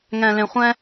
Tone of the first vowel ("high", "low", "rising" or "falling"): low